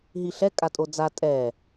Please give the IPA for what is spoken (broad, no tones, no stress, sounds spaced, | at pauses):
ɦ i ɬ ɛ kʼ a tʼ o d͡z a tʼ ɛ